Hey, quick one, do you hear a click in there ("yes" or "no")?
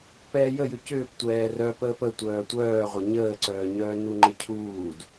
yes